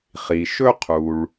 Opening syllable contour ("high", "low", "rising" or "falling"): low